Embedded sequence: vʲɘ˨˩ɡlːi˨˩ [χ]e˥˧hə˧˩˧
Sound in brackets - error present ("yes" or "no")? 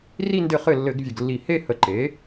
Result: yes